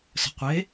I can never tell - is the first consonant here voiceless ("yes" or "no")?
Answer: yes